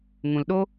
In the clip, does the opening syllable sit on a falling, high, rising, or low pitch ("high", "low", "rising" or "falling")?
low